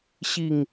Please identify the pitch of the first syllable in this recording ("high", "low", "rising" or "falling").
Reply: falling